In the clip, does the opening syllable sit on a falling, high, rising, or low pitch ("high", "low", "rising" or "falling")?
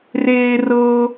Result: high